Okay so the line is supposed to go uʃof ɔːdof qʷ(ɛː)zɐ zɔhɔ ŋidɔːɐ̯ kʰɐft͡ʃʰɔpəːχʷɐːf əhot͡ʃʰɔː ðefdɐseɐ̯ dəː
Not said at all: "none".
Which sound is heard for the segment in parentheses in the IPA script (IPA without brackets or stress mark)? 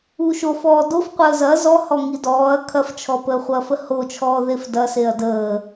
əː